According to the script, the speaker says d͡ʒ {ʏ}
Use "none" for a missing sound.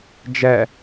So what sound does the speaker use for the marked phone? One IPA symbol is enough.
ɛ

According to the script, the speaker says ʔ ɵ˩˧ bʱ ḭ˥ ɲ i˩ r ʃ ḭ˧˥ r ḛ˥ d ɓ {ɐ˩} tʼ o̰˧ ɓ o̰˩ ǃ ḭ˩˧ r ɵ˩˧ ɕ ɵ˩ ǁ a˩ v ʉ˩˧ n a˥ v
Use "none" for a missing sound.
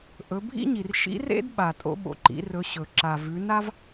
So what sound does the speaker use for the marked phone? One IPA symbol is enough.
a˩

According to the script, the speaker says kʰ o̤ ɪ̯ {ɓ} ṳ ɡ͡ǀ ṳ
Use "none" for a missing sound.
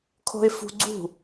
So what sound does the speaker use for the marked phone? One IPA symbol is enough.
f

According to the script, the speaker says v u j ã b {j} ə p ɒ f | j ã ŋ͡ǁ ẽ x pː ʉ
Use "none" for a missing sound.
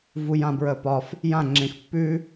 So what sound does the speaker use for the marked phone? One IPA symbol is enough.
ɹ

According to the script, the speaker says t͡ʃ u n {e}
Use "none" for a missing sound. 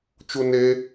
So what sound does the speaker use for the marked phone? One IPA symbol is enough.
e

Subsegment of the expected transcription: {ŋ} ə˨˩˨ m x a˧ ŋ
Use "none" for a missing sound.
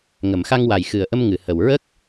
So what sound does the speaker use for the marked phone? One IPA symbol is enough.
ŋ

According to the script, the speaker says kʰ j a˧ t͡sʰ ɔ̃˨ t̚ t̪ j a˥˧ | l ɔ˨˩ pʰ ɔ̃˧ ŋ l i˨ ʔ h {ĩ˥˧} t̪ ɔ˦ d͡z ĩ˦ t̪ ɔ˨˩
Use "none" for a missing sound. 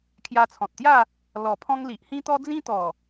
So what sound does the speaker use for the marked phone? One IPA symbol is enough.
ĩ˦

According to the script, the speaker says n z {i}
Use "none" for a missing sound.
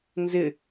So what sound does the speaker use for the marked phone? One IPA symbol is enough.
ɪ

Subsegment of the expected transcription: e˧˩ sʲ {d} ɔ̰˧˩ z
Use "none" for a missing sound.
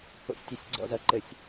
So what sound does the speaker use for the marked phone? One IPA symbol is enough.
ɡ͡ǀ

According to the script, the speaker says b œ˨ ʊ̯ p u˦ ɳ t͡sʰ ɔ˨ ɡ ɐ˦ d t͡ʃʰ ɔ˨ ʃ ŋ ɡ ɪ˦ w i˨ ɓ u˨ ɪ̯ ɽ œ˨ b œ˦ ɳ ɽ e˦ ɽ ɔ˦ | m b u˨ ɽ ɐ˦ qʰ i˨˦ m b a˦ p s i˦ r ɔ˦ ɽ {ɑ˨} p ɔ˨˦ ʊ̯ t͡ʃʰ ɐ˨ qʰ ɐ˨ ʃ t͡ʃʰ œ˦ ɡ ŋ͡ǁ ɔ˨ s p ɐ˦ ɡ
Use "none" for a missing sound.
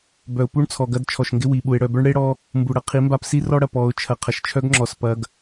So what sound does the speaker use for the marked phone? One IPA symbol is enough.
ɐ˨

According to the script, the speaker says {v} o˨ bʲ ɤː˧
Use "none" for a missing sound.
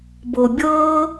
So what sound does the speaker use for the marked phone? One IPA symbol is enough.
b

